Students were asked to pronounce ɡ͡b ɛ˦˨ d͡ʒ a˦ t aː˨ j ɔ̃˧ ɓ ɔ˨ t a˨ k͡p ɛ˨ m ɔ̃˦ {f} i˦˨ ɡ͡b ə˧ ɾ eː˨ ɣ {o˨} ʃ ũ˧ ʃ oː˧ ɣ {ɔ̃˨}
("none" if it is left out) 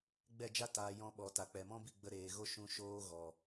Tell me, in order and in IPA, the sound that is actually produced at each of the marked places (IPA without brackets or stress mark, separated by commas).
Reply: b, o˦, ɔ˨